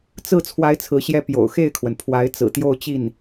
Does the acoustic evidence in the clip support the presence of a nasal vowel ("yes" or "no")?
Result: no